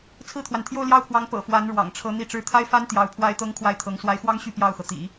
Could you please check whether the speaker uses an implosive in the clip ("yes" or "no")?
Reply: no